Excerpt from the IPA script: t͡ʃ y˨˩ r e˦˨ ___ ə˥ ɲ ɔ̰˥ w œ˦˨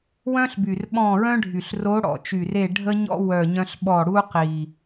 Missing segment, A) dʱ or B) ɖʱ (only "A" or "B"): B